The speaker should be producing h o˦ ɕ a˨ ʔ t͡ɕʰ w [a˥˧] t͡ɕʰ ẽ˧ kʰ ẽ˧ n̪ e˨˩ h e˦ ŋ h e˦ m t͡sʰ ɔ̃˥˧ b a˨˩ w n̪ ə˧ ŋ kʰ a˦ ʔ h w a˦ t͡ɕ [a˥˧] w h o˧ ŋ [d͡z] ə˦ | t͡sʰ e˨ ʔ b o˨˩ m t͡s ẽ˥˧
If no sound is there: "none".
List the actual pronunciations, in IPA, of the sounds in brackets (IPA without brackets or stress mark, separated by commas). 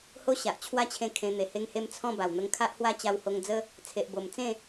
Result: a˥˧, a˧, d͡z